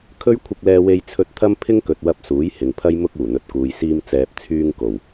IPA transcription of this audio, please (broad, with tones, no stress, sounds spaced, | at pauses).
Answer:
kʰ ɵ˥ ɥ kʷʰ ɪ˧ k̚ l ɛː˧ w e˧ j t͡sʰ ɵ˧ t̚ t̪ʰ ɐ˥ m pʰ ɪ˥ ŋ k ɵ˨ t̚ w ɐ˧ p̚ s uː˨˥ j h ɪ˨ ŋ pʰ ɐ˥ j m ʊ˥ k̚ uː˨˩ n̪ ɵ˨ t̚ k uː˨ j s iː˧ m t͡s ɛː˨ p̚ t͡sʰ yː˧ ŋ k o˨˩ w